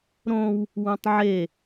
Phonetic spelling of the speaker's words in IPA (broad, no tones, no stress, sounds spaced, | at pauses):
ɾ õ w | w ũ tˤ ʕ e